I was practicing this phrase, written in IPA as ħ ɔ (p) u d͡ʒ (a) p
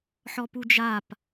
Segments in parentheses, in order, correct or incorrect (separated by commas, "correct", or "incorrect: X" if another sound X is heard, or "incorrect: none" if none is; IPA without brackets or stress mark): correct, correct